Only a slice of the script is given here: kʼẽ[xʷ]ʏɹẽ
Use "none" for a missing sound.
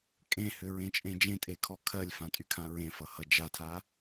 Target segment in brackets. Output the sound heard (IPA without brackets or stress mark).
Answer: h